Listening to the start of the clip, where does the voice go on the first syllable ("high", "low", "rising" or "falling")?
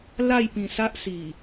falling